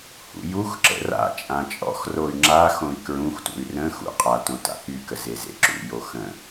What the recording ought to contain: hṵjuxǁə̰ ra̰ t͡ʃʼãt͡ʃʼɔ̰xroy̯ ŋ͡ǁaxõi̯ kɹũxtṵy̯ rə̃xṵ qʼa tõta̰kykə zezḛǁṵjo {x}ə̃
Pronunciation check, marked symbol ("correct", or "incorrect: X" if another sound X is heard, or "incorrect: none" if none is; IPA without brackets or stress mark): correct